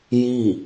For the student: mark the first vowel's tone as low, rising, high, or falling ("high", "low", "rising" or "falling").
falling